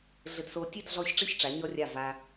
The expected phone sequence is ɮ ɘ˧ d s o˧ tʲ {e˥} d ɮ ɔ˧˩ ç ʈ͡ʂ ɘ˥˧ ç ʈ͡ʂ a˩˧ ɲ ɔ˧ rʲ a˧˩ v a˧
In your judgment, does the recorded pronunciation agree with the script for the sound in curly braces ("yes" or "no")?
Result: no